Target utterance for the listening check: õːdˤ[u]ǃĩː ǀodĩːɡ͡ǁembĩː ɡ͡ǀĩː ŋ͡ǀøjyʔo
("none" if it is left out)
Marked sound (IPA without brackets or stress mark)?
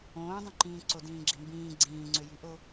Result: ũ